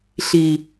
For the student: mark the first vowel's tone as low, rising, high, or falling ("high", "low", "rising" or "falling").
low